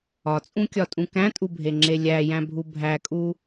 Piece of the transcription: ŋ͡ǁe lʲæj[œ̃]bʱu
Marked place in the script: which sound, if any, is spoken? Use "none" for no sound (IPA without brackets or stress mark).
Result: æ̃